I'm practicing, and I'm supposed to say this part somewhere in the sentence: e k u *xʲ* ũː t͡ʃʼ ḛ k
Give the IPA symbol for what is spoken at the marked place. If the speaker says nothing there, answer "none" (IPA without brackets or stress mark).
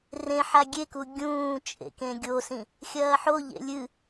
ɡʲ